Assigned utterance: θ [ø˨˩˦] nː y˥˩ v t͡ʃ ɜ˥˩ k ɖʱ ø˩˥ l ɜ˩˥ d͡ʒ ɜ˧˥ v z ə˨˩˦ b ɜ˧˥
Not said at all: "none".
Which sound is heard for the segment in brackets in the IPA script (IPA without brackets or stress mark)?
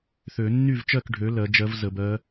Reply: ø˨˩˦